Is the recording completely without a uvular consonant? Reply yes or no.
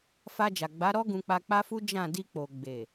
yes